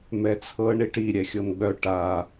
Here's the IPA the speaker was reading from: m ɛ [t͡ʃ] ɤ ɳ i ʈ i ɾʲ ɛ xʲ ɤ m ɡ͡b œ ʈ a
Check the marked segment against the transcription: incorrect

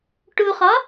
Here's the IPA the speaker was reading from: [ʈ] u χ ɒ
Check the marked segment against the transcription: correct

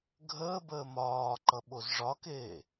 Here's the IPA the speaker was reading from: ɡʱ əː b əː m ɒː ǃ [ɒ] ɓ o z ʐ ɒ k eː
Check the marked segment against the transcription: incorrect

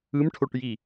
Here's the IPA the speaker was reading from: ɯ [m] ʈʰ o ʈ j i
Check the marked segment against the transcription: correct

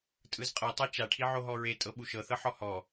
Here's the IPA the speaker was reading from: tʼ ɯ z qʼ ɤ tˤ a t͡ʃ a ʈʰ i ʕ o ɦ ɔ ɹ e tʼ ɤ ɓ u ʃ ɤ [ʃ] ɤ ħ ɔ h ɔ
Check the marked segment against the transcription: incorrect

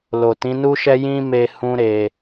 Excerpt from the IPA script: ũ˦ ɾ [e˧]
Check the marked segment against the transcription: correct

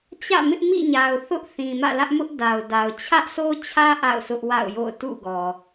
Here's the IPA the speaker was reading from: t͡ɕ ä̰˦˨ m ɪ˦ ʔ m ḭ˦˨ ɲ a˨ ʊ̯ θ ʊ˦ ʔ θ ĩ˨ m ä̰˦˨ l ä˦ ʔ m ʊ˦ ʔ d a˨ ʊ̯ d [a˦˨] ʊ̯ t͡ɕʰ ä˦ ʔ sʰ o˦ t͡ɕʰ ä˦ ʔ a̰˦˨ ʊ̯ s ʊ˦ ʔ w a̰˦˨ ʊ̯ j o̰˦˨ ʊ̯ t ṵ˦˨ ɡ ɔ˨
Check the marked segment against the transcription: incorrect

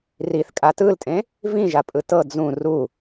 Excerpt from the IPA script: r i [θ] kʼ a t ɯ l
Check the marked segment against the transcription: correct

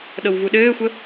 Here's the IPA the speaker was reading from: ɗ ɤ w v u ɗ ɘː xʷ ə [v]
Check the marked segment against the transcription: incorrect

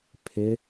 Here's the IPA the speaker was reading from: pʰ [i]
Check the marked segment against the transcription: incorrect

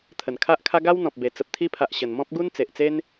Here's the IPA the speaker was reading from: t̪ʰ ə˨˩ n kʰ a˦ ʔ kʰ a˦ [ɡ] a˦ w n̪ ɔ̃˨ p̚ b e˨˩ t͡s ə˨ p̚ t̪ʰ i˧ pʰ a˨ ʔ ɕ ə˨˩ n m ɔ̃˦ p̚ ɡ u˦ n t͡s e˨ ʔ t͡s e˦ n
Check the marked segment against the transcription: correct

